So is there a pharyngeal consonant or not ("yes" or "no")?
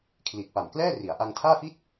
no